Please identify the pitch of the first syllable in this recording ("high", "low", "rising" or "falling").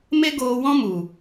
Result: high